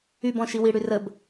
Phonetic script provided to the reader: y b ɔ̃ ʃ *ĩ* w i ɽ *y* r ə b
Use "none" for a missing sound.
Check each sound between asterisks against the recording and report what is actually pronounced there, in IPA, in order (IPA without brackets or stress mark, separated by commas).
i, y